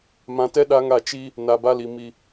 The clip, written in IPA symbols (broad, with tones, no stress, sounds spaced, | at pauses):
m ã˨ t ɛ˦ ɗ a˦ ŋ a˦˨ t͡ʃ i˦ | n a˨ b a˦ l i˨ m i˨